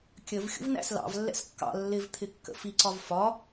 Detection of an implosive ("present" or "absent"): absent